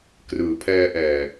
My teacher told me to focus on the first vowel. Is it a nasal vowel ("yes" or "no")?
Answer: no